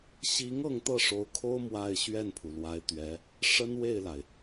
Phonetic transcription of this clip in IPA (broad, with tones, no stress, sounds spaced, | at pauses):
ɕ i˧˥ ŋ ɤ˥˧ ŋ t̪ ɤ˥˩ ʂ o˧˥ ʊ̯ kʰ o˥ ʊ̯ m w a˥˧ ɪ̯ ɕ ɥ ɛ˥˩ n pʰ u˩ l w a˧˥ ɪ̯ t̪ ɥ ɛ˧˥ | ʂ ə˥ n w e˥˩ ɪ̯ l a˩ ɪ̯